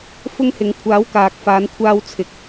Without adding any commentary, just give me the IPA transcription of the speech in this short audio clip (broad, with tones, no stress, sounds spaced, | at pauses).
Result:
f ʊ˥ ŋ h ɪ˨˥ ŋ kʷʰ aː˨˥ w k aː˨ k̚ f aː˨˧ n kʷʰ aː˧ w t͡sʰ ɪ˨˥ k̚